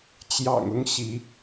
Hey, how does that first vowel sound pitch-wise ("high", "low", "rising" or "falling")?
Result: low